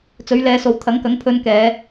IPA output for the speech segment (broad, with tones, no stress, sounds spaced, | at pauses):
t͡s ɵ˨˥ ɥ l ɛː˨˧ s o˨˧ w t̪ʰ ɐ˨˥ ŋ k ɐ˨˥ ŋ pʰ ɵ˧ n k ɛː˨˧